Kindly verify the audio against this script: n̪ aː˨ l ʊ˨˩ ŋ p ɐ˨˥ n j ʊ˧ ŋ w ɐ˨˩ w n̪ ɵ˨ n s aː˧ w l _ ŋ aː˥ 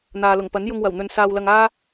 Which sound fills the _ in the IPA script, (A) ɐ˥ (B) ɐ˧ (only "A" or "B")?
B